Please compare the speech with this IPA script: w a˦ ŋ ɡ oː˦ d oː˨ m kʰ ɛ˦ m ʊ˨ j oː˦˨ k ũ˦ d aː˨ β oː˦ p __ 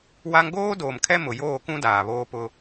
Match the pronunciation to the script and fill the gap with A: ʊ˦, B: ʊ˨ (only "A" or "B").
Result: A